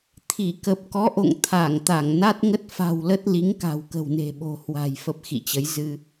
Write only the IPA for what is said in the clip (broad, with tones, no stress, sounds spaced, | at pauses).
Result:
t̪ʰ i˧˩ k ə˨˩ p̚ k ɔ˨˦ ʔ o̰˧˨ ŋ t̪ʰ a˧˩ ŋ t̪ a˧˩ ŋ n a˦˥ t̚ ŋ ə˦˥ t̚ f a̤˨˩ w l ə˦˥ t̚ l i˨˦ ŋ k a̤˨˩ w k ə̤˨˩ w n e̤˨˩ ɓ o̤˨˩ h w a̤˨˩ j f ə˦˥ p̚ x ḭ˧˨ t͡ɕ ə˨˦ j z ɨ˧